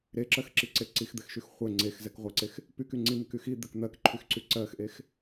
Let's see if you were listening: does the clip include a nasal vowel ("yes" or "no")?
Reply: no